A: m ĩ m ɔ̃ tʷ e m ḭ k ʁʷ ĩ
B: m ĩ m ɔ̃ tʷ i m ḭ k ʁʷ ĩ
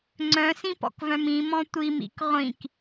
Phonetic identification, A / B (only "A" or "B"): B